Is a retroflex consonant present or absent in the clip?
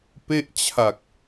absent